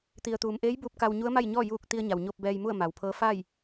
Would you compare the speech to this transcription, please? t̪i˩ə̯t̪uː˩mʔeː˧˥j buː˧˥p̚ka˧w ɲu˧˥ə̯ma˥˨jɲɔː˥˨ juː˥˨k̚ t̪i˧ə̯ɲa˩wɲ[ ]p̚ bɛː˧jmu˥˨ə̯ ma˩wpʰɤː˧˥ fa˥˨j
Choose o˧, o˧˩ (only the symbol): o˧